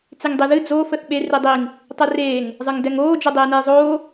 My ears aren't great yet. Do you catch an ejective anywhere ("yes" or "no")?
no